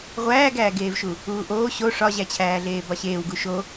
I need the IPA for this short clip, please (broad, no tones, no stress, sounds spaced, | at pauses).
ʁʷ æː ɡ æː ɡ eː v ʃ u | uː ʔ oː ɕ o ʂ ɒ ʑ æ t͡ɕʰ æː ɮ eː b ɒ ɕ eː w ɡ u ʃ o